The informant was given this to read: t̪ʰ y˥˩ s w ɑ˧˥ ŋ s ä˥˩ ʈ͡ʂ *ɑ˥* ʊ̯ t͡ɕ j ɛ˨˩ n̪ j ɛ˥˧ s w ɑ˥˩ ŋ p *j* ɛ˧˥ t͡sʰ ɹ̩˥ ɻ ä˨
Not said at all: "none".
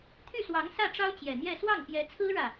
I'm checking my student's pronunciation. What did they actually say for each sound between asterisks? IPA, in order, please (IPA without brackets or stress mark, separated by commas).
ɑ˥, j